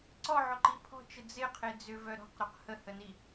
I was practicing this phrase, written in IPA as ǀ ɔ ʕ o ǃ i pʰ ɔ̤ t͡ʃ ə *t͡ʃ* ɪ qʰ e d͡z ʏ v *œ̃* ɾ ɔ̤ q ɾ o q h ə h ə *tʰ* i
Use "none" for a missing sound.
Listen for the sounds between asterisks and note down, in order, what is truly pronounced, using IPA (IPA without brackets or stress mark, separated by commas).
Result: d͡z, œ, n